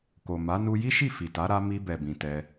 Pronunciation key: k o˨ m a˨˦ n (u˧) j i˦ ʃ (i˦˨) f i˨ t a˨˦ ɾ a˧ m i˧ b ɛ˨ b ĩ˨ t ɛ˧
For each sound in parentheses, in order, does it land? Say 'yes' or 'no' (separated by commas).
yes, yes